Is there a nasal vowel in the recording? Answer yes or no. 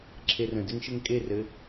yes